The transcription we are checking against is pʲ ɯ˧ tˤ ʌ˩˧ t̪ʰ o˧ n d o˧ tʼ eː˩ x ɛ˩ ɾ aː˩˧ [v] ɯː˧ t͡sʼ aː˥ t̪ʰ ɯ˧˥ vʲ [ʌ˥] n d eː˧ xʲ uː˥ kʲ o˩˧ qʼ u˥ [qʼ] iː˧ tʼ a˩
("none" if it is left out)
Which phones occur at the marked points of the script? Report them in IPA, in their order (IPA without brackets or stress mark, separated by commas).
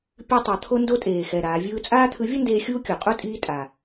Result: vʲ, ʌ˥, tʼ